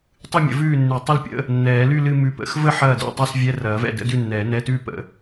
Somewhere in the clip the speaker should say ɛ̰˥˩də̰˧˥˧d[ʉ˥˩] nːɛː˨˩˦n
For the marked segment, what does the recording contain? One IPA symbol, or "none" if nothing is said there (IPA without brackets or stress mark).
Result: ʉ˥˩